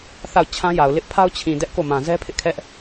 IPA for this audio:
θ a˦˨ ʊ̯ t͡ɕʰ ã˦ j a˨ ʊ̯ l ɪ˦ ʔ pʰ a˦ ʊ̯ t͡ɕʰ ĩ˨ d ɛ˦ ʔ k o˦˨ m ã˨ z ɛ˦ pʰ ɪ˦ ʔ kʰ ɛ˦ ʔ

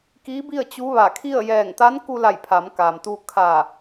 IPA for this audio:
k iː˧˥ b i˥˨ ə̯ t͡ɕ u˧˥ ʋ a˧˩ kʰ i˥˨ ə̯ j ɛː˧˩ ŋ t̪ a˧˥ n k u˧ l a˧˩ j pʰ a˩˧ m k aː˩ m t̪ uː˧ kʰ a˧˩

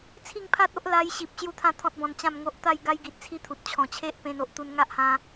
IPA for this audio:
t͡sʰ i˥˧ ŋ pʰ a˦ t̚ o˦ ʔ l a˧ j ɕ i˨ p̚ ɕ j u˦ t̪ʰ ã˦ t̪ʰ ɔ̃˦ t̚ b ɔ̃˧ n t͡ɕ ã˥˧ m ŋ o˦ ʔ t̪ a˥˧ j ɡ a˦ j ɡ i˨ t̚ t͡sʰ i˦ t̪ʰ u˨ t̚ t͡ɕʰ ɔ̃˨˩ t͡ɕʰ e˦ ʔ p ẽ˧ n o˨ ʔ t̪ u˧ n ŋ a˦ ʔ h ã˧

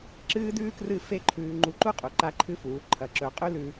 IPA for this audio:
ǁ ɨː˦ d ʉː˦ k r ɨ˦˨ f e˦ ǃʰ ʉː˧ ŋ͡ǃ u˧ ǃ u˦ qʼ u˨ ǃ a˦ ǃʰ ɨ˦ f uː˨˦ ǃʰ ɐ˧ ǁ ɵ˧ qʼ ʉ˦ l ʉ˧

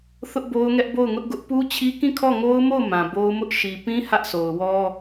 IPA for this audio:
θ ʊ˦ ʔ b o˦ ʊ̯ ŋ ɛ˦ ʔ b o˦˨ ʊ̯ ŋ ʊ˦ ʔ ɡ ʊ˦ ʔ p u˦ t͡ɕʰ i˦ k ĩ˦˨ kʰ ɔ˦˨ ŋ o˦ ʊ̯ m o˦˨ ʊ̯ m ã˨ b o˦ ʊ̯ m ʊ˦ ʔ ʃ i˨ p ĩ˦ h ä˦ ʔ sʰ o˨ ʊ̯ w ɔ˦

